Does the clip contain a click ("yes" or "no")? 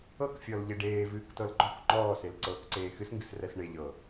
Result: yes